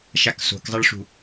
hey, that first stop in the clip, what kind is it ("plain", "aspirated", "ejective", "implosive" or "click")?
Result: plain